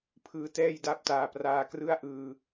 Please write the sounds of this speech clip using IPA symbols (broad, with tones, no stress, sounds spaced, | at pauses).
pʰ ɯː˦˥ t ɛː˥˩ j d a˥˩ p̚ t aː˧ p r aː˧ k r ɯ˥˩ a̯ ʔ ɯː˧